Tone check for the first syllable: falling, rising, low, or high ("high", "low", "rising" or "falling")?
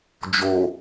low